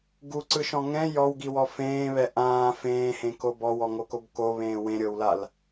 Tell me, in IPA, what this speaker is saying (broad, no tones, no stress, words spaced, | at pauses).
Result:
ɡuǀɯʃɔ̃ ŋɛ̃ jɔwɡiwɔ fẽːβɛ ʔãː fẽːhẽko bɔwɔŋokob koβẽː wẽɾʲɤwlal